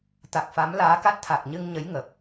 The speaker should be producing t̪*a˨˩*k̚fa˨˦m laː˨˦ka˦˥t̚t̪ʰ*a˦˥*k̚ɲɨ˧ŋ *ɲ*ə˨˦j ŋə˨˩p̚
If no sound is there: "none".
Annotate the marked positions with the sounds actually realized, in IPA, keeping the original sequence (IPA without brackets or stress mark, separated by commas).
a˨˩, a˨˩, ɲ